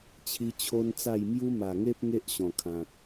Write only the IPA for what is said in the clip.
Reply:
t͡ɕʰi˦t͡ɕʰo˦nt͡sa˥˧j mju˦ma˨˩ŋe˦p̚ ŋe˦ʔɕɔ̃˨˩kʰã˨t̚

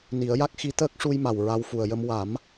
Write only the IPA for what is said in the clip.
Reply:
ni˨˩˦ə̯ja˦˥k̚xi˧˥t̪əː˦˥k̚ ʂu˧jma˨˩w ɹa˧wfu˨˩ə̯jə˧m wa˨˩˦m

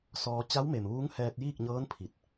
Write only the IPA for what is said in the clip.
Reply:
sɔː˧ t͡ɕa˧˥wme˩m ʋuː˧˥ŋhɛː˧t̚jiː˥˨k̚ɲɤː˧˥n pʰi˧˩t̚

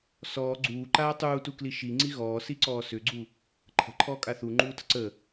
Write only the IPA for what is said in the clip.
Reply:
sɔː ɡ͡ǀuːǃaː tˤuːtukli ʃiŋ͡ǀi ɣɔːsiǀɔː sʏɡ͡ǀu | ǃʰə̤ǃʰɔːkʼa θuŋ͡ǃuːtə̤ ǀə

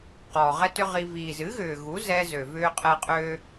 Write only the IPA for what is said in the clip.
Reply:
qɔː˨ʁɛ˦tʏ˦ʁi˧ viː˨zɨ˨˦ɣʏː˨ɣu˨˦ zɛ˧zø˨vʏː˧qʼɛ˧ qʼøː˦

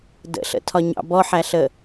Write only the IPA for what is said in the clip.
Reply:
də̰ɬə̰tʰɒɲɑ̰ bɔħæɬə

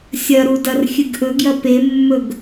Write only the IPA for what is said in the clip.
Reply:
sʲɐɾu dɐrxʲɨɡʔɵɡjɐ pemːɵɡ

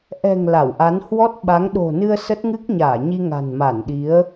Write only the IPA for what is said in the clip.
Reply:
ʔɛ̤˨˩ŋ la˧˩wʔa˨˦n hwɔ˦˥t̚ɓa˨˦ŋ ɗo̤˨˩nɨ˧ə̯ sə˦˥t̚ŋɨ˦˥k̚ɲaː˧˩ ɲi˧ŋa̤˨˩nma˧˩nɗi˨˦ə̯

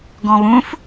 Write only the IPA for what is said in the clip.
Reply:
ɡɔ̃βũf

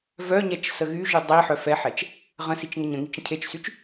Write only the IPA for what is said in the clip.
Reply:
vœɲɛt͡ʃ səɣyʒy dˤi ħœfɛħɛt͡ʃ | ʁə̃sit͡ʃ ŋəɲə̃ŋit͡ʃ ə̃cʰet͡ʃsyt͡ʃ

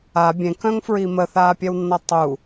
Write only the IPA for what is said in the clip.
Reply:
a bʲẽkœ̃ŋfɹi məθaːpʲɛwnːɔ tˤu

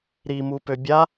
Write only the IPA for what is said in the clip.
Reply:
ɾimupø bʲa

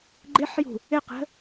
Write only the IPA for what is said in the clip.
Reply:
ɡ͡ǃɪħjṳ | ɪqə̤

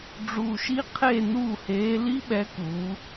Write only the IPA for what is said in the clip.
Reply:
ɖ͡ʐu˧˩ʃi˦˥ qʰe˥˩ nuː˥˩heː˨˥ li˦˥ɓɛ˨˥kuː˩˧

